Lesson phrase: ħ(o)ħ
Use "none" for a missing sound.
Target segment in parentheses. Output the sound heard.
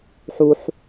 u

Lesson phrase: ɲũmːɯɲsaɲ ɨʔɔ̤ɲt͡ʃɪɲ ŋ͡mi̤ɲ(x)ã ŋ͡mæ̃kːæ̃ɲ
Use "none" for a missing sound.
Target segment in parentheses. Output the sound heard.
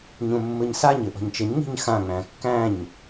x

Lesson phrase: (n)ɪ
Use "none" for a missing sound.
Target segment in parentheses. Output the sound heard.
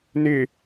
n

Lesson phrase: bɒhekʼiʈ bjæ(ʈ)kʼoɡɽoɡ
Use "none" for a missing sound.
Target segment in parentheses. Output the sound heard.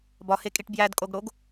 d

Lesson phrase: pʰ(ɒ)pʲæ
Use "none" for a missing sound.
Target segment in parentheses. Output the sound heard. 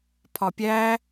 ɒ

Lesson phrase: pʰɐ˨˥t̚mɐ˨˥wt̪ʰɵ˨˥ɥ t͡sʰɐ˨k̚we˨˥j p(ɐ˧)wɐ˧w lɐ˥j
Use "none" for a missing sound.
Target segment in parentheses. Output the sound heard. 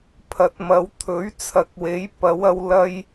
ɐ˨˥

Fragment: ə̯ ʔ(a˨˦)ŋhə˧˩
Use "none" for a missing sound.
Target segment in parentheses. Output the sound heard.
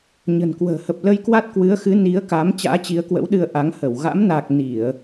a˨˦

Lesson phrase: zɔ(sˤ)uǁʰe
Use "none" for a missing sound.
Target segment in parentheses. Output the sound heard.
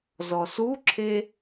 s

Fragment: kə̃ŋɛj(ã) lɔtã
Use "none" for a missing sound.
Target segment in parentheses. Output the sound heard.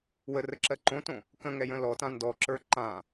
ə̃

